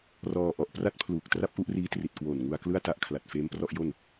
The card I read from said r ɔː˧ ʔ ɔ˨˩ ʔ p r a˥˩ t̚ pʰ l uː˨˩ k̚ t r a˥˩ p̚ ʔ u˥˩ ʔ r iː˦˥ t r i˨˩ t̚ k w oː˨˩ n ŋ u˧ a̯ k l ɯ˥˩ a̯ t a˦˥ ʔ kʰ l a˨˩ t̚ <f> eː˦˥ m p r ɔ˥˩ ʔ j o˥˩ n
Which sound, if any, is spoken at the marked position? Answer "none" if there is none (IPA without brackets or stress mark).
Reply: f